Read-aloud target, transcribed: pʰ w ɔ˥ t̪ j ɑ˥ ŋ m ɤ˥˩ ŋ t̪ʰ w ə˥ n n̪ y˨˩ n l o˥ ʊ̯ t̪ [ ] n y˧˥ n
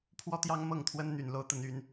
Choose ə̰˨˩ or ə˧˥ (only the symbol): ə˧˥